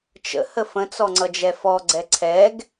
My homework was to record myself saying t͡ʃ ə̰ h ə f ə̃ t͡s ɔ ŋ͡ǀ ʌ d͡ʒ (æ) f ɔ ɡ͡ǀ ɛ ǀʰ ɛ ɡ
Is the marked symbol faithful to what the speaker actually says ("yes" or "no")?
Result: no